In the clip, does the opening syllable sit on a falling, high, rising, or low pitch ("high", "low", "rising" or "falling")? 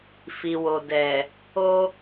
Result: low